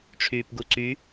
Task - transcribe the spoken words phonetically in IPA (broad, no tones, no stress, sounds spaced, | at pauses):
ʈ͡ʂʰ yː p ɡ u ǀ y